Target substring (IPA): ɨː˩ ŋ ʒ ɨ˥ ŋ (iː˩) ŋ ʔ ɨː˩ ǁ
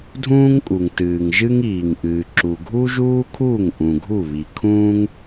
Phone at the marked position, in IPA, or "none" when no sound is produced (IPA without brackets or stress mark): iː˩